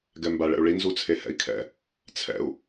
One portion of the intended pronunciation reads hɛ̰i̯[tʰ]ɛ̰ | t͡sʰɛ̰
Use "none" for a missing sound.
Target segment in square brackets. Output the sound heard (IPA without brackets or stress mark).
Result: kʰ